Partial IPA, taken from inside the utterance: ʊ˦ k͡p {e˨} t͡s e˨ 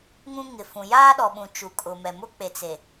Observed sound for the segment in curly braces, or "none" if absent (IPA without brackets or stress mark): e˨